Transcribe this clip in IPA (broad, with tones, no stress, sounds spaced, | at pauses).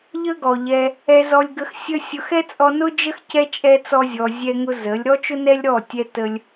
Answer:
ʎ ə˦ ɡ ɔ˨ ʎ ɛ˧ | ɛ˧ z ɔ˧ lʲ ɡ ə˧ x sʲ ə˦ sʲ ʊ˧ x ɛ˦ t͡sʼ ɔ˧ n ʊ˦ d͡ʒ ə˦ x c ɛ˦ t͡ʃʼ ɛ˦ t͡s ɔ˦ zʲ ɔ˧ zʲ ɛ˦ ŋ ʊ˦ z ə˨˦ lʲ ɾ ɔ˦ t͡ʃ ʊ˦ n ɛ˦ lʲ ɾ ɔ˦˨ tʲ ɛ˦ t ə˦ lʲ